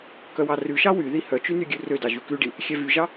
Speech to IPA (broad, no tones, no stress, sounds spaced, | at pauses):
k œ w ɑ r ʉ ʃ ɑ w y ð i h œ t͡ʃ y n y ɡʲ ʉ r ø d ɑ ʒ ʉ k ʉ ɖ i | xʲ ɛ v y ʒ ɑ